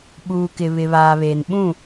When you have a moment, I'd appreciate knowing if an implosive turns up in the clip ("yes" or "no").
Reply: yes